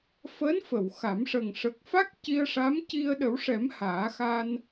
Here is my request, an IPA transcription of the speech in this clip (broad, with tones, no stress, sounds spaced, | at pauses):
f əː˧˥ n f ə˨˩˨ w x a˨˩˦ m ʂ ə˨˩ ŋ ʂ ə˨˩ k̚ f a˦˥ k̚ c i˧ ə̯ ʂ a˧˥ m c i˧ ə̯ ɗ ə˨˩˦ w ʂ ɛ˨˩˦ m h aː˨˩˦ x a˧ n